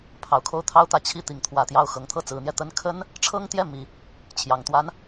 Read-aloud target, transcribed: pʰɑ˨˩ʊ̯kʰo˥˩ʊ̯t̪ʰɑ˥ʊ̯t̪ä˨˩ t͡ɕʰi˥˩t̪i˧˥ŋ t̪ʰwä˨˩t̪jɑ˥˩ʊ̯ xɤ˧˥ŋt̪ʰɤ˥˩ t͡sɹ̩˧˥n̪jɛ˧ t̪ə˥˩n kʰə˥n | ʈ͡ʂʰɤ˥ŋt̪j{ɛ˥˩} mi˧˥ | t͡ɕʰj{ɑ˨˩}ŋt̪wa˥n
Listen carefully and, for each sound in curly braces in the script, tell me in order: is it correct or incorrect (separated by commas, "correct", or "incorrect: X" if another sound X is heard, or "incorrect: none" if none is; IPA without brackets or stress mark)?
correct, correct